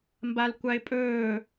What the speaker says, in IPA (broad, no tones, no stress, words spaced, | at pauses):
mbalkʷaɪ̯pʼɵː